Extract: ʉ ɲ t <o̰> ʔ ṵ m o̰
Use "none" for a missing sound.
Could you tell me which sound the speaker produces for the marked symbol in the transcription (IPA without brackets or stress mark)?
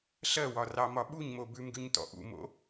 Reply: ɔ̰